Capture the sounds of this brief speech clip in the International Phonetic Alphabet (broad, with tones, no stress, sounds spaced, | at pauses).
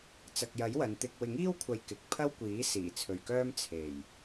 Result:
t͡s ɐ˨ k̚ j ɐ˨˥ j w ɐ˨˧ n t̪ ɪ˧ k̚ w ɪ˨˥ ŋ iː˥ w kʷʰ ɐ˨ j k ɪ˨ k̚ pʰ ɐ˥ w kʷ iː˨˥ s iː˨˩ t͡sʰ ɵ˨ ɥ k œː˥ m t͡sʰ e˨˩ j